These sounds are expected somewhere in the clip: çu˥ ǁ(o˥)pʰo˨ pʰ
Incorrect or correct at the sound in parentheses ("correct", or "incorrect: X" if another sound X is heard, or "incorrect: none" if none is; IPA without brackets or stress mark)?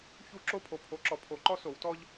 incorrect: o˥˨